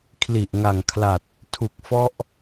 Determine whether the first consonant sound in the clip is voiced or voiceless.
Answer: voiceless